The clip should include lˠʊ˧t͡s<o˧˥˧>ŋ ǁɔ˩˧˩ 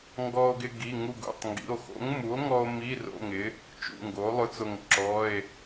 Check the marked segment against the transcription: incorrect: o˧˩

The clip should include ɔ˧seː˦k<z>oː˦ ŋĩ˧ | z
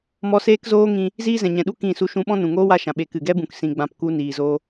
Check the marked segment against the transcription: correct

